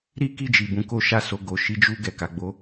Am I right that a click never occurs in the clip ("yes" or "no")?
yes